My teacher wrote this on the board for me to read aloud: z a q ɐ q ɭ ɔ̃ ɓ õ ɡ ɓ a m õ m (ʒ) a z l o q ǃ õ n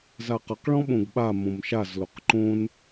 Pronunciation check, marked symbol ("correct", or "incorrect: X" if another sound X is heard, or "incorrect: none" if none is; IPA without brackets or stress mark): incorrect: ʃ